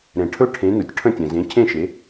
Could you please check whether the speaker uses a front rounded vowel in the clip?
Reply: no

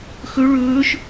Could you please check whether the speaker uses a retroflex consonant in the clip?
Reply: yes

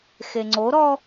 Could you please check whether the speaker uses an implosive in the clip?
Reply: no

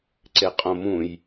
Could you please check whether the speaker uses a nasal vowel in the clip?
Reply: yes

